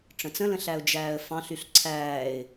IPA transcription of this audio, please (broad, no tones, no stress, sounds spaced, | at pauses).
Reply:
ʈ͡ʂ ə̃ t͡s ə̃ l ə̃ ɬ æ ʊ̯ d͡ʒ æː ə̯ f ɑ̃ ɬ y ɬ ǀʰ æː ɪ̯